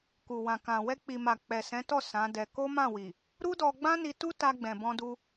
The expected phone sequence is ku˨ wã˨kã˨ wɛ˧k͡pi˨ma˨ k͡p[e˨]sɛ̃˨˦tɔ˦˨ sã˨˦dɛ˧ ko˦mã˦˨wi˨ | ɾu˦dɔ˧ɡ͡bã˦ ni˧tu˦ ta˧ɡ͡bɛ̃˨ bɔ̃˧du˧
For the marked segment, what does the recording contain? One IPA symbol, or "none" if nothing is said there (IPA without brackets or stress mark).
ɛ˨